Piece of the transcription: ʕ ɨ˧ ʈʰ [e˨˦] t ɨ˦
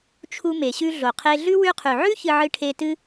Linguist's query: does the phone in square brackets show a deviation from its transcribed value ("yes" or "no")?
yes